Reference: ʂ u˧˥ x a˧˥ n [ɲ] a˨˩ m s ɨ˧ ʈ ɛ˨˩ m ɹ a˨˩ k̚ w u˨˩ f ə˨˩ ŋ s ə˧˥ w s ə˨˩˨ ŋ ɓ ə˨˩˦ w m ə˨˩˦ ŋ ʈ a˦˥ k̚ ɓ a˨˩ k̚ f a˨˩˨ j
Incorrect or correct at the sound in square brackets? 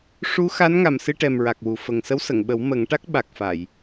incorrect: ŋ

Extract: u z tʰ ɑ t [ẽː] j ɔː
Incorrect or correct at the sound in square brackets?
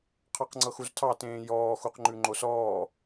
correct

